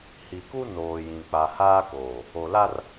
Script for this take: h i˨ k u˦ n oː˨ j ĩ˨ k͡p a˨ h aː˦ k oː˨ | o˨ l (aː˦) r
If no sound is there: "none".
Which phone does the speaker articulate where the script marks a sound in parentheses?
a˦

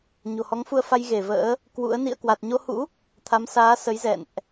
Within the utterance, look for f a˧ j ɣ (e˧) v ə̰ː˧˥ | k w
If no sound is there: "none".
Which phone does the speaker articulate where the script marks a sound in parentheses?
e˧˩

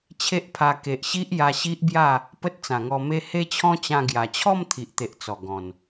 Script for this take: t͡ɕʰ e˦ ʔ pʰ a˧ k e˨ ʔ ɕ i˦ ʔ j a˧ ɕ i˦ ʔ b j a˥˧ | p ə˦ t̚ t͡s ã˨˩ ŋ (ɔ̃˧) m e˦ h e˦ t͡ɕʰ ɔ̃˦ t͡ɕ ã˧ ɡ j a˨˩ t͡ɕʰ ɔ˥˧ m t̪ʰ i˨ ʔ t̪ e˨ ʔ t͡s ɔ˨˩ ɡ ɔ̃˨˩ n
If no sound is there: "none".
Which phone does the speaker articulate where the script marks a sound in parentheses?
ɔ˧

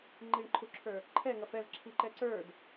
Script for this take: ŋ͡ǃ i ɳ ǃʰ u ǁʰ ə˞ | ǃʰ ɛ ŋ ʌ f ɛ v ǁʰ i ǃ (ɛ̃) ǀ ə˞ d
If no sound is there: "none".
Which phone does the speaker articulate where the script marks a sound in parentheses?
ɛ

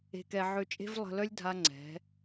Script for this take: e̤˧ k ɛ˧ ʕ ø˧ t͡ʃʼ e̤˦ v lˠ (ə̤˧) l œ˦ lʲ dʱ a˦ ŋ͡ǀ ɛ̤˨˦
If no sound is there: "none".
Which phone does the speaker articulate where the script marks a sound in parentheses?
ə̤˧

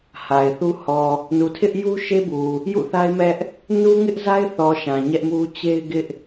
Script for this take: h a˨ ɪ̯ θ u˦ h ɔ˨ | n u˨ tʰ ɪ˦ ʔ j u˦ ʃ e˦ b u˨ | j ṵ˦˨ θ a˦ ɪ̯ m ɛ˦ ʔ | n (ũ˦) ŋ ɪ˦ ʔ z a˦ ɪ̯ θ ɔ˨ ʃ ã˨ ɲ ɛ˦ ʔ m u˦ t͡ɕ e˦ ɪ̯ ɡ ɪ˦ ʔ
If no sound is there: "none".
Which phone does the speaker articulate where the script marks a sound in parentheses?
u˦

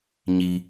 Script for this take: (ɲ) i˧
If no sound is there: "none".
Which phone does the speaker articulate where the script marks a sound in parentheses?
ɲ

